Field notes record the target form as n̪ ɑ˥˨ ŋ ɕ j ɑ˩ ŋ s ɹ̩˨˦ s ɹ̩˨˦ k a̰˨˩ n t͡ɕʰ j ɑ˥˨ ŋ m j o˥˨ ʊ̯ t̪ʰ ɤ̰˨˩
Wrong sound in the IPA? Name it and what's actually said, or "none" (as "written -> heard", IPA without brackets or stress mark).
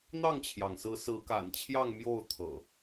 ɕ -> t͡ɕʰ